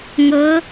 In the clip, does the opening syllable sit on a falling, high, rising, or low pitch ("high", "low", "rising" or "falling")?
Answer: rising